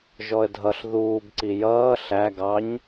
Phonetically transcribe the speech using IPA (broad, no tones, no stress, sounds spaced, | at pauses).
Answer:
ʒ ɔ ə̯ dʱ ʌ ɬ ð uː b ǀ i j ʌː ɬ æ ɡ ɑ ɲ